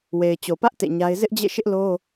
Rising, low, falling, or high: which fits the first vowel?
low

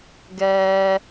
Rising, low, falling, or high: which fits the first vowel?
high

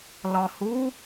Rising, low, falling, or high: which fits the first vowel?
low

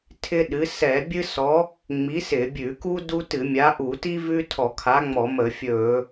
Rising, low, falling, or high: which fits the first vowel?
high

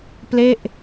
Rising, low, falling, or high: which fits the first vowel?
falling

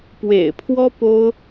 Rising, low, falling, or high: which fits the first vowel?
low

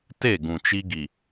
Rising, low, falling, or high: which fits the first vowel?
falling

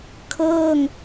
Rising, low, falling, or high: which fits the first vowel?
falling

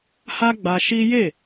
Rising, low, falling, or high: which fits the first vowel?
high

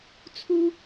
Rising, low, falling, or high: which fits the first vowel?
high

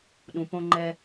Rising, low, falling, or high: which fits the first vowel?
low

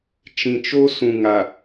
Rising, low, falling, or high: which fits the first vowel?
low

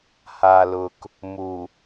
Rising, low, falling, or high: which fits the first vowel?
low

